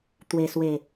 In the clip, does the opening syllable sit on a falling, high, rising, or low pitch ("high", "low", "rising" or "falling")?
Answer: low